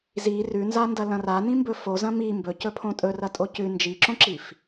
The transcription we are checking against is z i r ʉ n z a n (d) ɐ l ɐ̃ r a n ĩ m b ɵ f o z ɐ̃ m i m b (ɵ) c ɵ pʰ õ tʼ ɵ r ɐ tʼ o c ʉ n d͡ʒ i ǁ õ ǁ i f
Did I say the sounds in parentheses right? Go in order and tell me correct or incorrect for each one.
correct, correct

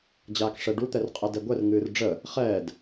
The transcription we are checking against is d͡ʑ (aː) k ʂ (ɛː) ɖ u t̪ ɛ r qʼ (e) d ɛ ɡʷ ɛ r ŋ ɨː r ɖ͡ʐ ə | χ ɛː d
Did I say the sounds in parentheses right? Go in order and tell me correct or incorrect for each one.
correct, incorrect, incorrect

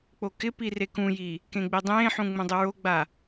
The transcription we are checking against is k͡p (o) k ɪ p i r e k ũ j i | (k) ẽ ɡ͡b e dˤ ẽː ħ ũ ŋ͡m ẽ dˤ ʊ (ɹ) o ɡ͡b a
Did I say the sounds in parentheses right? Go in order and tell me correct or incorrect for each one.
correct, correct, correct

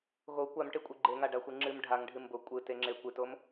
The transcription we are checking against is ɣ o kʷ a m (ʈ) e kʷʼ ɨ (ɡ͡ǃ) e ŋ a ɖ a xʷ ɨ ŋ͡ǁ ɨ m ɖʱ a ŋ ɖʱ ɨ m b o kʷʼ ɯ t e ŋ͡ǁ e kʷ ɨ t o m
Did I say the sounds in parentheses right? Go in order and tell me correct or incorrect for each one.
correct, correct

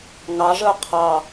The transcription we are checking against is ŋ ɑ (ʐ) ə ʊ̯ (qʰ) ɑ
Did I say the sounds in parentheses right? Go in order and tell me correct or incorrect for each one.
correct, correct

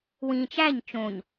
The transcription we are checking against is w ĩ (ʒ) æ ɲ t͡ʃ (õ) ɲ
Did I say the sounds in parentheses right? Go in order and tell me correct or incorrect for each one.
incorrect, correct

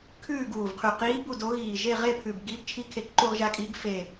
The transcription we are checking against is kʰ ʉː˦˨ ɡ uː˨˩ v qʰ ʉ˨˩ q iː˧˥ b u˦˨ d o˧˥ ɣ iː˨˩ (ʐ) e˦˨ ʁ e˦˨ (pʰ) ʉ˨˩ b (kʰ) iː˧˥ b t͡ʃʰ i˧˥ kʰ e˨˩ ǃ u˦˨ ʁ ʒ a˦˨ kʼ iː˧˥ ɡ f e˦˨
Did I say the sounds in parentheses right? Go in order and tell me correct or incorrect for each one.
incorrect, correct, incorrect

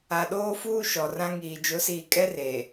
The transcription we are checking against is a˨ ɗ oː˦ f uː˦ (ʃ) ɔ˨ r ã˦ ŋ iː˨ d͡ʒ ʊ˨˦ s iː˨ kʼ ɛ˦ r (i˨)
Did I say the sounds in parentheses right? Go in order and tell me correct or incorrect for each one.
correct, incorrect

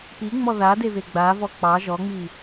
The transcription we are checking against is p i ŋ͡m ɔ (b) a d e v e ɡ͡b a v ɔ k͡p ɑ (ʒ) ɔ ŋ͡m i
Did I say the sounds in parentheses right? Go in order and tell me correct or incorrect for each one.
incorrect, correct

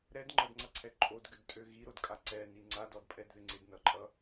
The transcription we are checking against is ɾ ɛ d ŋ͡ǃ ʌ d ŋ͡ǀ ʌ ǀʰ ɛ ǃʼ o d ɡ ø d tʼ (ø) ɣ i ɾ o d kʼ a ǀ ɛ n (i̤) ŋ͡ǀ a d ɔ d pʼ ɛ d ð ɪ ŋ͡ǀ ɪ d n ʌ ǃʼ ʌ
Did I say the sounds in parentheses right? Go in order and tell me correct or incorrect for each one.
correct, incorrect

